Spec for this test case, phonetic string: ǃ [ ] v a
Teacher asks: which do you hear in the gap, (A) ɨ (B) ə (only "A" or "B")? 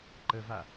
B